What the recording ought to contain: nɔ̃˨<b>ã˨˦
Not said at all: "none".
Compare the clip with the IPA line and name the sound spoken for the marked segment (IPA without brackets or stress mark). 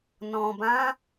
b